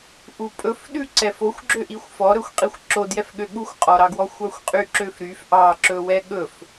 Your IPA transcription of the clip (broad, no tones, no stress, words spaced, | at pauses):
ʔupʼɵfɗʉ ǀɛfoxʷɡ͡ǁø ʔixʷfɔɾɵxʷ qʼixʷǁodjɛfɠø ɠuxʷqʼɔɾɑɡwɔ xʷɑxʷqʼyǁøfɾyf ʔɑǁɵ wɛɠɵf